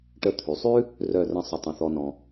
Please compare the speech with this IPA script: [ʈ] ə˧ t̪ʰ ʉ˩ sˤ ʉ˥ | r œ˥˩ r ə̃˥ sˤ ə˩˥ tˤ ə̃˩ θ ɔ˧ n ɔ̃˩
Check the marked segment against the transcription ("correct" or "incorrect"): correct